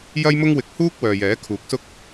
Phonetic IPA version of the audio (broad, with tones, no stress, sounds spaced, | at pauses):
j ɐ˥ j m ʊ˥ ŋ w ɪ˧ k̚ h uː˥ k̚ w œː˨ j ɛː˨˥ kʰ uː˨˥ k̚ s ʊ˥ k̚